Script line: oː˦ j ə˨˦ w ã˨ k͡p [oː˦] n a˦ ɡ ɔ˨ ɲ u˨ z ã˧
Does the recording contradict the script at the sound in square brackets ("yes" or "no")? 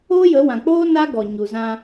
no